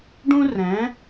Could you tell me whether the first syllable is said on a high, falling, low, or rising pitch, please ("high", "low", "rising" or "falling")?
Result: high